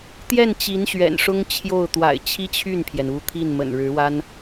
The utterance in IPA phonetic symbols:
t̪ j ɛ˥˩ n t͡ɕ i˧˥ n ɕ ɥ ɛ̰˨˩ n ʂ ʊ˥ ŋ t͡ɕʰ j o˥˩ ʊ̯ t̪ w a̰˨˩ ɪ̯ t͡ɕʰ i˥ t͡ɕʰ y˥˩ n pʰ j ɛ˩ n u˧˥ t̪ʰ i˥˩ n m ə̰˨˩ n ɻ ɻ̩˧˥ w a˥ n

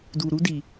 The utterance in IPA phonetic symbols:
d u˧ ɾ u˦ d i˧

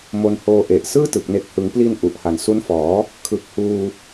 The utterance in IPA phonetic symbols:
m o˧ n h oː˧ ʔ e˨˩ ʔ s ɯː˥˩ t ɯ˨˩ k̚ n e˨˩ k̚ h ɯ˩˦ ŋ p l i˧ n ʔ u˨˩ ʔ h a˨˩ n s u˦˥ n f ɔː˩˦ | kʰ ɯ˨˩ k̚ h uː˧

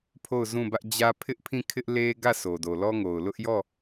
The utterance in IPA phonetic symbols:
pʰ o˦˨ ʊ̯ z ũ˦˨ b ä˦ ʔ d͡ʑ ä˦ pʰ ɪ˦ ʔ pʰ ĩ˦˨ kʰ ɪ˦ ʔ l e˦ ɡ ä˦˨ sʰ o˨ d o˨ l ɔ˦ ŋ o˨ ʊ̯ l ʊ˦ ʔ j ɔ˦˨

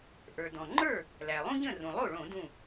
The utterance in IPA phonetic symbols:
ʔ ə˞˩ d ɔ̃˩ ŋ͡ǃ ə˞˥˩ | l æ˩ lˠ ũ˥ ʎ ə̃˥˩ r ũ˩ lˠ o˥˩ ɭ õ˧˩˧ d ũ˧˩

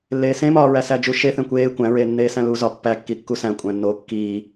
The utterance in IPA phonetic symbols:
lː eː s ẽ m ɒː ɹ æ s æ d͡ʒ u ʃ e θ ẽ kʷ eː kʷ æ̃ ɹ eː nː eː s æ̃ l uː z ɒ pː æ kː i kː u s æ̃ kʷʼ æ̃ nː o kː iː

